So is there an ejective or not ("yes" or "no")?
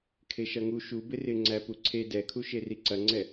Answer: no